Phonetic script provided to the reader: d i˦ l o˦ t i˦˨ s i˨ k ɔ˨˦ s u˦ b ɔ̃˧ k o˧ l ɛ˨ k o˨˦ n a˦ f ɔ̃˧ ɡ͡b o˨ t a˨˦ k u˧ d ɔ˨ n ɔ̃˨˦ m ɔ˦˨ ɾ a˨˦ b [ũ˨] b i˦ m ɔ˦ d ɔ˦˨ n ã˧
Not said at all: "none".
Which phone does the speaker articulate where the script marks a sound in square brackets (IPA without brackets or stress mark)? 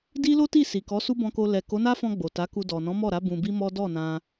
ũ˧